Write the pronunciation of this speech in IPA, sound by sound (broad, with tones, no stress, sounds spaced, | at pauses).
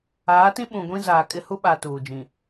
aː˨˦ t ĩ˦ ɓ ũ˨ ɡʷ ĩ˦ z aː˨ kʼ ɪ˦ h u˦ ɓ a˨ t uː˨ d͡ʒ ĩ˨